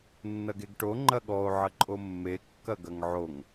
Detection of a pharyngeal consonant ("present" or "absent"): present